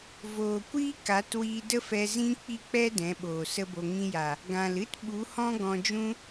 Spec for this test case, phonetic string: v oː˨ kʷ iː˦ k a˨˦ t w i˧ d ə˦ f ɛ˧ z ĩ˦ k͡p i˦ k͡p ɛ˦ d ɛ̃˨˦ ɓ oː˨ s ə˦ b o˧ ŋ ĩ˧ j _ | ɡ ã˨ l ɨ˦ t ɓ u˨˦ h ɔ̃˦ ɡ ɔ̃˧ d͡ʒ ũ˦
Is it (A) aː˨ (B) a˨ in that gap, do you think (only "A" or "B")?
B